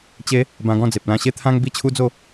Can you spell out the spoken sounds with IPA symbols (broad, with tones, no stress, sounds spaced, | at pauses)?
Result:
t͡ɕ e˦ | b ã˧ ɡ ɔ̃˥˧ d͡z e˨ p̚ l ã˧ ɕ e˦ t̪ʰ ã˦ ŋ b i˥˧ t͡ɕʰ u˦ d͡z o˥˧